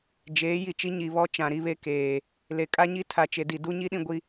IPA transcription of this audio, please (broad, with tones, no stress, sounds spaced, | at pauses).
d͡ʒ eː˨˦ j i˨ t͡ʃ i˦ ɲ i˨ β ɔ˦ t͡ʃ ã˨ ɾ i˦ β e˦ k eː˨ | l e˨ kʼ a˦ ɲ i˦ tʰ a˨ t͡ʃ e˨ d i˨ d u˦ ɲ i˦ ɗ ĩ˦ ɡʷ i˦